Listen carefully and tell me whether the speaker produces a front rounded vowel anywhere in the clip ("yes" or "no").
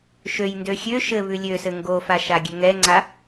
yes